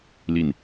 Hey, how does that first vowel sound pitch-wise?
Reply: low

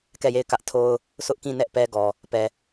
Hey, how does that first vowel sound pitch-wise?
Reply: falling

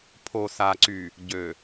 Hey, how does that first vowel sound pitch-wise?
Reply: low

